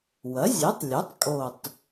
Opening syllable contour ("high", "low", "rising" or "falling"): rising